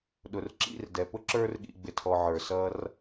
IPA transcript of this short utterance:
ɗʊ˨rǁḭ˦˨rdɛ˨ pʊ˦ǁə˞˧r ɠḭ˨ɡ͡bɪ˨tʰɔ˨ ʕə˞˨sʌ˦r

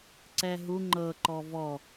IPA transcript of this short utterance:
ǀɛɦu ŋ͡ǃɤ ǃɔvɔ

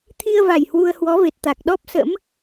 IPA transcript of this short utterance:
t̪ʰi˧ə̯va˨˩j hwu˧ə̯hwɔ˨˦ve˨˩t̚ t̪a˨˩k̚ɗɔ˦˥p̚sə̰˧˥m

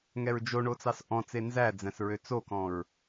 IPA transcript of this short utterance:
ŋɛɹd͡ʒo ɳot͡sɑsʔɔ̃t͡se nzæd͡zæ̃s ɹøt͡sokɔ̃ɹ

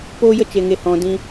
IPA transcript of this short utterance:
poː˦jə˦t͡ʃe˧ŋe˧ hɔ̃˧ dĩ˦

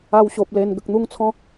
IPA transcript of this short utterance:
a˧wɕo˨p̚ le˨˩n ɡə˨k̚n̪u˦ŋt͡sʰɔ̃˦

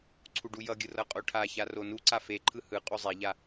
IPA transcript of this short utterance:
ǀʰuɖujʌɡʲɯ rʌqʼoʈʰaça ronuǀa feǃʰɯ hɯ qʼuzˤeʎa

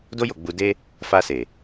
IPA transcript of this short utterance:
do˦jo˦˨ ɡ͡bu˧ de˦ | fa˧se˨

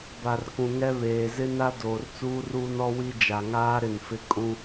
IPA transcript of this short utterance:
ba˨rkũ˨ ŋɛ˦ βeː˨zɪ˦na˦ doː˨rt͡suː˦ruː˦n ɔ˦wi˦ d͡ʒa˨ŋaː˦ ɾɪ˦˨nfɪ˦ kʼũ˦

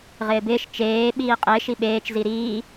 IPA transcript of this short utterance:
ʁɪːbɪːʃ t͡ʃeː ɓiːqʼɪːʃ iɓeːt͡ʃ ziɾiː

